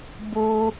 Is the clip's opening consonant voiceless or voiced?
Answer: voiced